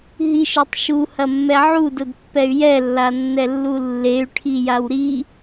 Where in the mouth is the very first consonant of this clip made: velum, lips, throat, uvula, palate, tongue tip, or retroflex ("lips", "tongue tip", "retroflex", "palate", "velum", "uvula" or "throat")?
throat